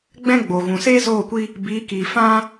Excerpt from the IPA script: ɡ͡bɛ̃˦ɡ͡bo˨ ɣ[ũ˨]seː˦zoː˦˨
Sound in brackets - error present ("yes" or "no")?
no